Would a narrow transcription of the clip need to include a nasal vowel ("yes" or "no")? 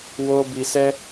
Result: no